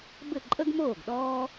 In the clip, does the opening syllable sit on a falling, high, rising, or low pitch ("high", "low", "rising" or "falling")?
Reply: falling